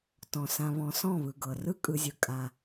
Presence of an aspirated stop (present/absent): absent